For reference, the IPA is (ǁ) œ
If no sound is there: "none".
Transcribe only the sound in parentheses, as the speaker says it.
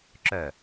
ǁ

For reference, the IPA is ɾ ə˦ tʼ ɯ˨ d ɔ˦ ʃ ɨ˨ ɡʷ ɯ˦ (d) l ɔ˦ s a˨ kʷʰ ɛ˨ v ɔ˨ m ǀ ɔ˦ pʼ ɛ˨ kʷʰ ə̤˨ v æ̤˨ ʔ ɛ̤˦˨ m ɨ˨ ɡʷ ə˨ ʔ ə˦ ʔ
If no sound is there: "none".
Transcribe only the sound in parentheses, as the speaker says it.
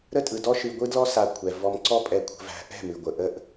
d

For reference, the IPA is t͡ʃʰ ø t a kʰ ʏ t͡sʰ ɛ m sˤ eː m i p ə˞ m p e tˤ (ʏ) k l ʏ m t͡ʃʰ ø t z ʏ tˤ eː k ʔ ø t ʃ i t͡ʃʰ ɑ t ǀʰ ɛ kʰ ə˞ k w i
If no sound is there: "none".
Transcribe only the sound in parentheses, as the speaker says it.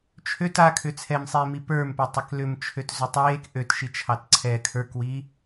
ɛ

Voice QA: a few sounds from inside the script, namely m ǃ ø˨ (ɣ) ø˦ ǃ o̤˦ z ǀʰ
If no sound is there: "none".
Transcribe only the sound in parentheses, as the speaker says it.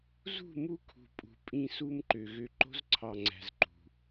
ɣ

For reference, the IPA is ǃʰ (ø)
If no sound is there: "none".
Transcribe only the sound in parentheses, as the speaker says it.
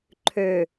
ø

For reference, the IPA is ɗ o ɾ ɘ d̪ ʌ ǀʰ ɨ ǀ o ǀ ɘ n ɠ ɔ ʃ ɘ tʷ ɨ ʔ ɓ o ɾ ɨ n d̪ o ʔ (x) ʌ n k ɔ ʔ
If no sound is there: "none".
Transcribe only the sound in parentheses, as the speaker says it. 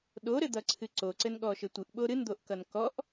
k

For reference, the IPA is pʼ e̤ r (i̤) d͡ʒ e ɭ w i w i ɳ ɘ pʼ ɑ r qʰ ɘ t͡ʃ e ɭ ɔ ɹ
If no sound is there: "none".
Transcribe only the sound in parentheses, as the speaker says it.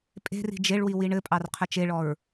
i̤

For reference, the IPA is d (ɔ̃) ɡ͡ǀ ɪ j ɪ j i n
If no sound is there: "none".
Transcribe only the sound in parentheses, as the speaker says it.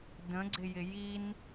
ə̃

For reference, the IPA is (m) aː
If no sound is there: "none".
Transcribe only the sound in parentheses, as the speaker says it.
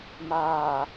m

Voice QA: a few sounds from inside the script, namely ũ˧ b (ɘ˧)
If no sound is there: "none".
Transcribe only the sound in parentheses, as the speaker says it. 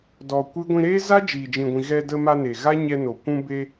e˧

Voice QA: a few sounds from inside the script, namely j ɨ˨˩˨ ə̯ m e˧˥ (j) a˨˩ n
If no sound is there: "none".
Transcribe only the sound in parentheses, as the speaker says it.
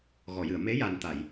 j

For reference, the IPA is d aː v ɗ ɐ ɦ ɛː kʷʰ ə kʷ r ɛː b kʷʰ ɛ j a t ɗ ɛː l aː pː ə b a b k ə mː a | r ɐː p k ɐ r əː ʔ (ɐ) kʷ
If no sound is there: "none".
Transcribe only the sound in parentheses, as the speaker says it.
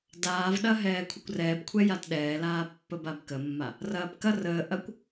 ɐ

